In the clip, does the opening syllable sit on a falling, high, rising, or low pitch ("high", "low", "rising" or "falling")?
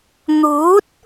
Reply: rising